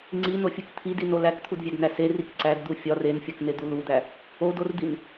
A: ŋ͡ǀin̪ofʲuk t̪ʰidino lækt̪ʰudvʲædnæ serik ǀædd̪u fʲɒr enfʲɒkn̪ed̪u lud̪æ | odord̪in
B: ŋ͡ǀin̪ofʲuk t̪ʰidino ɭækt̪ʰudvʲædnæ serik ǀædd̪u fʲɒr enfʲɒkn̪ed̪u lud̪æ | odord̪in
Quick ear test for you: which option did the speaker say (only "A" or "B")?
A